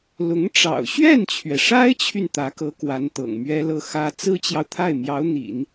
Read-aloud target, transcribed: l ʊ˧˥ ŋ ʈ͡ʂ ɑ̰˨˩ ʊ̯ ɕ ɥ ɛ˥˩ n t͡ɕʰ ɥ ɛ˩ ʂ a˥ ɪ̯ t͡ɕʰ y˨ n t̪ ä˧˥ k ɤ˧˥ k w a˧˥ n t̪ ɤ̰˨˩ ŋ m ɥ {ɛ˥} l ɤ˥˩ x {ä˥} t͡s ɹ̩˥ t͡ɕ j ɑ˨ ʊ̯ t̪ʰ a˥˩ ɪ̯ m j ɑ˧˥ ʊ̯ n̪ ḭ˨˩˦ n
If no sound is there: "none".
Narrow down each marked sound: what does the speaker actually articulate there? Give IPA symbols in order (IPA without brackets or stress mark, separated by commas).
ɛ˥, ä˥